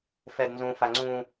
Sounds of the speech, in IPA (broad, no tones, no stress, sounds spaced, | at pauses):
f ɛ d n z ũ f a ŋ͡ǀ ũ